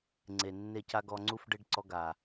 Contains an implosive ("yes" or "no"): no